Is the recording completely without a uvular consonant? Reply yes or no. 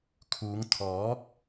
yes